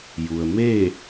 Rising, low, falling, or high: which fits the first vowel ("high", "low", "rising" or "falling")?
low